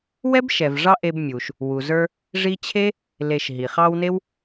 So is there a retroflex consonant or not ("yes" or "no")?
yes